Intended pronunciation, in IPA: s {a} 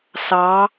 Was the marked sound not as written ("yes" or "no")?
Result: yes